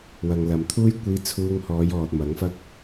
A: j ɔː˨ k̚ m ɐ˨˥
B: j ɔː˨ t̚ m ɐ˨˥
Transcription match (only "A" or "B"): B